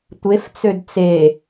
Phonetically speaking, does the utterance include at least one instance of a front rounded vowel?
yes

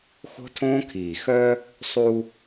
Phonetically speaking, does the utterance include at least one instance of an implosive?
no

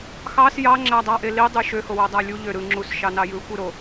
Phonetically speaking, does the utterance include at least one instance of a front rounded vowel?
yes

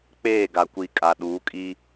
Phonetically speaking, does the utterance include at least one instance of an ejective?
yes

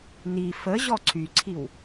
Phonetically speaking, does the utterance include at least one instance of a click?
yes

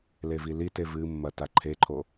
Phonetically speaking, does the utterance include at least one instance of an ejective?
no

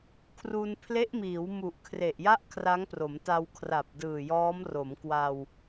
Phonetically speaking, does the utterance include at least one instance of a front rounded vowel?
no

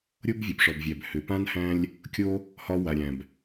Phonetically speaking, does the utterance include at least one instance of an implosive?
no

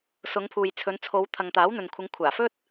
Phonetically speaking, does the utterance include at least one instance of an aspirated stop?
yes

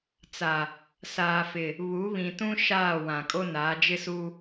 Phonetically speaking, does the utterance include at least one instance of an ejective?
yes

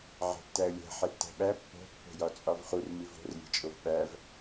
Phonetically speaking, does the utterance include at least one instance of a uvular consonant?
yes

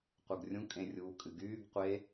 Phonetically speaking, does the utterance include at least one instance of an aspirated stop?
no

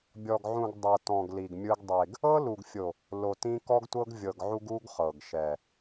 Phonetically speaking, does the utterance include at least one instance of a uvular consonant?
yes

